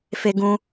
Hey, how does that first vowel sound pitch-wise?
high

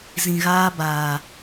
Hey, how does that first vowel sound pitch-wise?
low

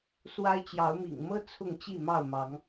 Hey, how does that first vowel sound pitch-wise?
high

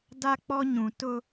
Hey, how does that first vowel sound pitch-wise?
high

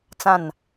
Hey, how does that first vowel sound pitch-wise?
falling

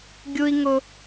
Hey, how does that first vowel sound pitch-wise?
high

